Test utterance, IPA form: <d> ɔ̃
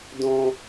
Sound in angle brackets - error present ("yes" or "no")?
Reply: no